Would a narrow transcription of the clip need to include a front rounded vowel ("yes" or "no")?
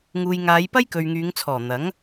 yes